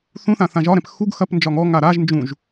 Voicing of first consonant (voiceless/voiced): voiceless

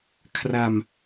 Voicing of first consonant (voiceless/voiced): voiceless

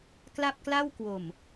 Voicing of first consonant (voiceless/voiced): voiceless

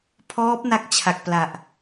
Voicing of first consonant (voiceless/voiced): voiceless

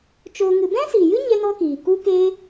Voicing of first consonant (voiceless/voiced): voiceless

